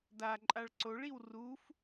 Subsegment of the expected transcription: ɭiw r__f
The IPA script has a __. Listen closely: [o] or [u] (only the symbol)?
u